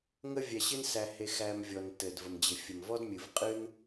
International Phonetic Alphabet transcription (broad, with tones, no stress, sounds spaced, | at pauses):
ŋ ə˦ vʲ æ˧ ɕ ɪ˦ n s æ˧ h e˧ x æ˧ m vʲ ɔ˨ n t ɘ˨ d v ə˨ m d͡ʑ ɪ˨ fʲ ə˨ m v ɔ˦ d mʲ ɨ˨ v qʼ ɨ˦ n